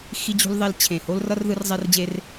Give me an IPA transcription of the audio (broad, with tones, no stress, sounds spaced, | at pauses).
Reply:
x i˦ d͡ʑ ṳ˦ l ðˤ e˦ l t͡ɕʰ ẽ˨˩ h o˦ l r ʌ˦ r ð ɯ˦ r zˤ ɛ˦ r d͡ʑ e˦ r